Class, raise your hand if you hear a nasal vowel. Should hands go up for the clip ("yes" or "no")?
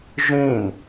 yes